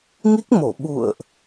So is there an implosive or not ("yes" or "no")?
yes